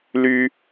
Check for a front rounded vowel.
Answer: present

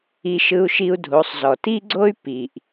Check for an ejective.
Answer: absent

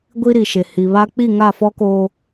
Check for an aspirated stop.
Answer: absent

